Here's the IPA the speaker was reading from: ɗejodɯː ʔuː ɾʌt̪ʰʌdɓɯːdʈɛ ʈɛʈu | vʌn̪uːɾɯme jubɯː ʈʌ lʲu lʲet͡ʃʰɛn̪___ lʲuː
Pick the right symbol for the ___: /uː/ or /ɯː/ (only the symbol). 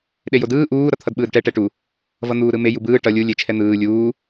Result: ɯː